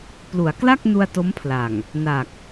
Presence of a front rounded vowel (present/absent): absent